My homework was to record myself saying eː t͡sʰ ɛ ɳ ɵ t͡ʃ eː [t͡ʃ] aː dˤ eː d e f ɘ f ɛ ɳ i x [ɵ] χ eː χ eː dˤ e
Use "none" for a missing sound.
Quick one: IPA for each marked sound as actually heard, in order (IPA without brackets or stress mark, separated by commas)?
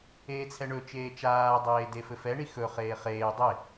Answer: t͡ʃ, ɵ